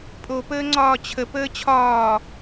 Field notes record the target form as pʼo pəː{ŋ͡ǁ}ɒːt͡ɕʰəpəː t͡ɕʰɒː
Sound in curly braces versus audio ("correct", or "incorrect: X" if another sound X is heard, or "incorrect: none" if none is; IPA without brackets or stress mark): incorrect: ŋ͡ǀ